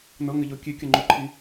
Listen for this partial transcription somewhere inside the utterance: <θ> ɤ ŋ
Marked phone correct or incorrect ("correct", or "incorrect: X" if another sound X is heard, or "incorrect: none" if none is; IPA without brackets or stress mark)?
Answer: incorrect: n